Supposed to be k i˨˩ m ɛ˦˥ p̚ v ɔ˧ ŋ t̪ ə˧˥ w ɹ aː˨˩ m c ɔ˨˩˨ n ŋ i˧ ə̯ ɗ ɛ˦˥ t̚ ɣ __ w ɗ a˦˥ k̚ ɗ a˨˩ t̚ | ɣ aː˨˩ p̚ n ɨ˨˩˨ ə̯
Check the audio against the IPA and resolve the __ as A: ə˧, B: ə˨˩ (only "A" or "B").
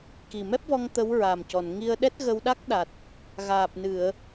A